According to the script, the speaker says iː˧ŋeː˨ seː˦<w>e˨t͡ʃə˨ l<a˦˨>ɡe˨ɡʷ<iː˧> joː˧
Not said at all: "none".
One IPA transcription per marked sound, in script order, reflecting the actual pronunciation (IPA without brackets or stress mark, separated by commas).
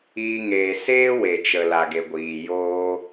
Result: w, a˨, iː˨